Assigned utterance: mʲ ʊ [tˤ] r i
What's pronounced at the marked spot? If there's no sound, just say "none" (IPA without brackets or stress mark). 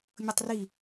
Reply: tˤ